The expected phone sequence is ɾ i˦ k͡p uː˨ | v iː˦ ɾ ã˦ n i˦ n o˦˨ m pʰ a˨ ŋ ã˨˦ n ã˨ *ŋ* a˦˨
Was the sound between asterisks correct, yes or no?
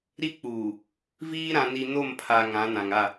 yes